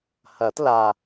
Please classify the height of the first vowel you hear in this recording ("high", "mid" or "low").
low